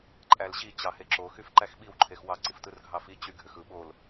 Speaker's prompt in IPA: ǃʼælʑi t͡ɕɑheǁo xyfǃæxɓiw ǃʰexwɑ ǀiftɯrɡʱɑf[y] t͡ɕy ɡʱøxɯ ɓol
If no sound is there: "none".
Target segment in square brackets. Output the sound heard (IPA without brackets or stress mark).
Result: i